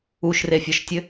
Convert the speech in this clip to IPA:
u ʃ r e fʲ ɔ ʃ tʲ ɘ

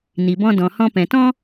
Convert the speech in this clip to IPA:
n i˨ b ɔ̃˧ d ɔ̃˨ h ɔ̃˧ p ɛ̃˨ t ɔ̃˦

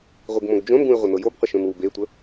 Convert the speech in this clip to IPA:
ʁʷ i ɡ m õ ɡ d͡ʒ õ n ɡ ũ ɪ̯ ʁʷ ə n ɤ j o b qʷ ə ʃ õ n w u b e tʷ ə

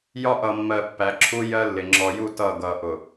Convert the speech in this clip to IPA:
j ɒ˦ ʔ ʌ˨ mː ɜ˨ pː æ˨˦ ǁʰ u˦ j ɜ˦ lː ɪ˨ ŋ͡ǁ ɔ˨ j u˦˨ t ʌː˦˨ ɡ ʌː˨ ʔ ʊ˨

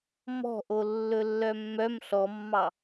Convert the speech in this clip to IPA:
m ɔ̤ ʔ o lː ɵ lː œ mː œ m ɬ ɔ mː ɑ

